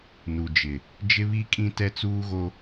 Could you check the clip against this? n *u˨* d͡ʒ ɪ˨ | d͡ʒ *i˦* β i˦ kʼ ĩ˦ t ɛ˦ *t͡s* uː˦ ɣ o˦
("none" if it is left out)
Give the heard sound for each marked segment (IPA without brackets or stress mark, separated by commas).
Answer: u˨, ɪ˦, t͡s